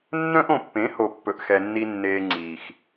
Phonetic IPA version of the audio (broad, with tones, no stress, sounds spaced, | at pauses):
nː œ̃˦ ʔ õ˨ pː ẽ˨˦ h o˨ pː ɵ˨ ʔ x ɛ˨ nː i˧ nː eː˧ ŋ͡ǀ iː˨ x